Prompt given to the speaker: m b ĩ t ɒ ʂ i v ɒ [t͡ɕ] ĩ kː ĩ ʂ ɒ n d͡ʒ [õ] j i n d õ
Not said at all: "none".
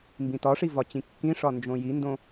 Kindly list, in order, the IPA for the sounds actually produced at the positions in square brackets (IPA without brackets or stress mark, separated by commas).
t͡ɕ, õ